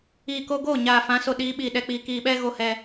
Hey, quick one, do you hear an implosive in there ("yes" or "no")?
yes